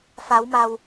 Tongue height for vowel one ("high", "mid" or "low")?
low